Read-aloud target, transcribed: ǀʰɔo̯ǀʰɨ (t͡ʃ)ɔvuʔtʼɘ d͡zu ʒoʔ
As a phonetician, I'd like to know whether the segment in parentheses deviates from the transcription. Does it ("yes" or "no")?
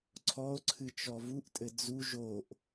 no